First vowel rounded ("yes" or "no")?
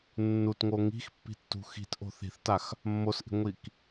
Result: yes